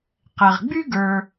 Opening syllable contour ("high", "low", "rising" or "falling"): low